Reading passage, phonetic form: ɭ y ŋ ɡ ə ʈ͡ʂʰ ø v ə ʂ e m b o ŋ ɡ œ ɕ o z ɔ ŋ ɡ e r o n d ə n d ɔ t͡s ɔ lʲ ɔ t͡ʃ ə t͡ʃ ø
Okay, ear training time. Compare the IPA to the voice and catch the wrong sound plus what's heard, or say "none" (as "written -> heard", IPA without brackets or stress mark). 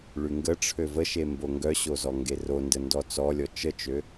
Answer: ʂ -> ʃ